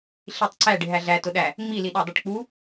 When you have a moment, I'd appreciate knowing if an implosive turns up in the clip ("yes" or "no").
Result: yes